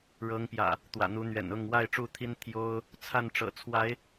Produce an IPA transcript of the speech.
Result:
ɻɤ˨˦ŋpjä̰˨˩ | t̪wä̰˨˩n̪u˨˦n̪ɥɛ̰˨˩nʊ˥˨ŋ wa˥˨ɪ̯ʈ͡ʂu˥˨t̪ʰi˦n t̪ʰjo˦ʊ̯ | t͡sʰa˥˨n ʈ͡ʂɤ̰˨˩t͡sʰwa˨˦ɪ̯

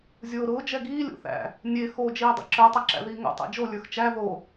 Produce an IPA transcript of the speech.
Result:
zʲoːɾʊː d͡ʒɛɡiː lʲo̰θæ̰ | nʲe xo d͡ʒiːdˤḭǁə˞ tˤaǁæ̰ðiːŋo̰ tˤæ̰d͡ʒo lʲə˞xt͡ʃæ ðo

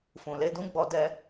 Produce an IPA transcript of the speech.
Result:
fũ˨le˧dũ˦ɡ͡bɔ˧ dɛ˧

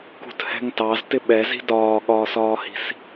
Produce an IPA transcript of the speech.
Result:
kṳthɛ̤ŋtɑz tɪɓɛzi̤ dɒːɠɒːsɒːhi̤s

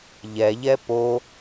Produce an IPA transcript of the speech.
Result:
ʎɛʎɛ po

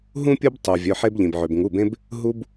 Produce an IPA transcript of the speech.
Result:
ɦũ˦ pʲu˦btˤu˩ vʲœ˩˧˩ħe˦bʎĩ˩b ʕø˩bŋu˩˧˩bẽ˦b | ɦu˦b

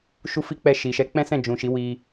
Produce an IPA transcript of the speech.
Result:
ʃu˦fi˦k͡pɛ˦˨ʃi˨ ʃɛ˨˦k͡pɛ̃˦sɛ̃˦˨ d͡ʒũ˨ʃi˨˦wi˧

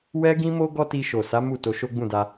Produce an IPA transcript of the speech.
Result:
wɛ˦ɡĩ˦mo˦ ɡɔ˦ti˧ ʃo˨sa˨˦ mu˦˨ to˧ʃo˦ɡ͡bũ˦˨da˧

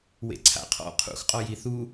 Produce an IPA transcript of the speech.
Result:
wḛǀʰa̰qʰɔ̰ qʰṵxqʼɔ jiθu

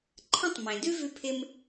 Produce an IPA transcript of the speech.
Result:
ǃʰə̃˥tˤ mẽ˩dʉ˥vʉ˧pʰɪ˧m

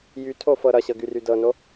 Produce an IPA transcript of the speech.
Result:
jytʰofɤ ɾʌɕɤɡyry dɤno

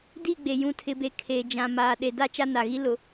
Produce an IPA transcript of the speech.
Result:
di˦˨ ɡ͡be˨ jũ˨tʰɪ˨be˨ kʰe˨ d͡ʒã˨maː˨ ɗe˨da˦ t͡ʃa˦na˨ɣi˦ lʊ˨

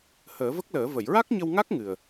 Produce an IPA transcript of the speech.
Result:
həː˨˩˦və˦˥k̚ləː˨˩˦ və˨˩˨jɹa˦˥k̚ɲə˧wŋa˦˥k̚ ŋɨ˨˩ə̯

